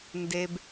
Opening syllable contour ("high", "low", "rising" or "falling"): low